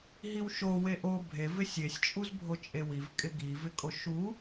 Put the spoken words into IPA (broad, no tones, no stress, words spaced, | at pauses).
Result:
ɦiwʃo weʔo bʱe vɪsʲesʲ t͡ʃʼuzbʱot͡ʃʼewiv kʼɪɡi vɪkʼoʃu